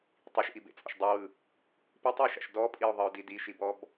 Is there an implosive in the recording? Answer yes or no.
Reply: no